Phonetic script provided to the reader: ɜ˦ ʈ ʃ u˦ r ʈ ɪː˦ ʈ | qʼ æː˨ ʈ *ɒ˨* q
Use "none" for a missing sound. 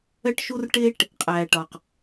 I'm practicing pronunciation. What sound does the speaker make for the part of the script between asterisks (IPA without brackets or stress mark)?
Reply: ɒ˨